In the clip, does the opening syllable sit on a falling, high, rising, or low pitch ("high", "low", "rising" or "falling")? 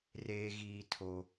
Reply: high